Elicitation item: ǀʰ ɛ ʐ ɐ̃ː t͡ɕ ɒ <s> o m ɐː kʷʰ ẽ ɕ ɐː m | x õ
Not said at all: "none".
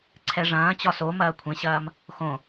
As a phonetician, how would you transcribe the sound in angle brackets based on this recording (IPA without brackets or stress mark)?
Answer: s